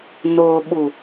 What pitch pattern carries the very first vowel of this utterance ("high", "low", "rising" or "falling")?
low